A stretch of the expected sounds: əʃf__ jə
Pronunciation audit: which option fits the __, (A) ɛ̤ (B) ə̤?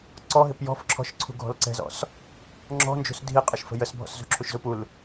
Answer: B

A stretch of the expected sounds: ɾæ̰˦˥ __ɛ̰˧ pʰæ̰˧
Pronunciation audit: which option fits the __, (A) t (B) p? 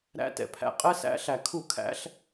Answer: A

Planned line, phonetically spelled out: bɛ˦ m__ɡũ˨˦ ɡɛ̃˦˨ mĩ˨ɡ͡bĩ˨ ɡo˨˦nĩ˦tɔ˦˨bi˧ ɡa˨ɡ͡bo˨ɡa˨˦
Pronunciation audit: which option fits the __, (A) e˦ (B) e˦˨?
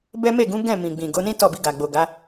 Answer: B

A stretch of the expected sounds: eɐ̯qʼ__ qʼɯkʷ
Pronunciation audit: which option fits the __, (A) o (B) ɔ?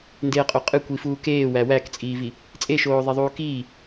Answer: A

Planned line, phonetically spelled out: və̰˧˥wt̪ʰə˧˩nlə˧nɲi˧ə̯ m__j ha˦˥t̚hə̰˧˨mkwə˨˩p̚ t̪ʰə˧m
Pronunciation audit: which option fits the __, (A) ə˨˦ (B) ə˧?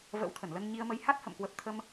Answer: A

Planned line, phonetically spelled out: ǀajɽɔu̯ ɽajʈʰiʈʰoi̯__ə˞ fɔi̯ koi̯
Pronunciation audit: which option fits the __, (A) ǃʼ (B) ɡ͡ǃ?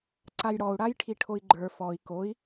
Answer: B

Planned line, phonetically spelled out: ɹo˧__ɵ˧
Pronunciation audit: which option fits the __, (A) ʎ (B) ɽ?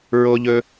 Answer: A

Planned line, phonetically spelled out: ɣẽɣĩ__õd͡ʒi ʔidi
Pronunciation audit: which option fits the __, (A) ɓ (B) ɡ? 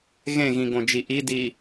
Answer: B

